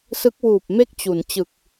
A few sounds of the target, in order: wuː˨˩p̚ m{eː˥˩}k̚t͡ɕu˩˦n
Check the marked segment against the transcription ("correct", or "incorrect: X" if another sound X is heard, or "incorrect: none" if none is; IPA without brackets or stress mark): incorrect: e˥˩